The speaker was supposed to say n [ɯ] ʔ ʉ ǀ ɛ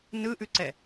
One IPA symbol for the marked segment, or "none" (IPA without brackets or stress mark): ɯ